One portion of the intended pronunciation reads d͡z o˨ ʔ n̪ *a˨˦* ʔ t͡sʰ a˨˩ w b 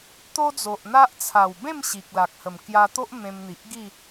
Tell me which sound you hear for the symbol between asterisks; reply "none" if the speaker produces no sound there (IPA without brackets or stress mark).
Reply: a˦